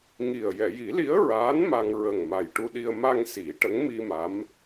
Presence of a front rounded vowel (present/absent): absent